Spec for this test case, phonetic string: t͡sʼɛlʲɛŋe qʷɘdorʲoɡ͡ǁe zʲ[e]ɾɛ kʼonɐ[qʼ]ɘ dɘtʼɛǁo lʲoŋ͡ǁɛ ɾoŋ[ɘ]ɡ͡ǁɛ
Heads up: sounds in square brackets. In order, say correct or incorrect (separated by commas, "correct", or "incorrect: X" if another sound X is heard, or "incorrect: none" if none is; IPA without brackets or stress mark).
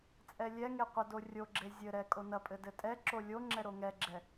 incorrect: ɘ, incorrect: pʼ, incorrect: ɛ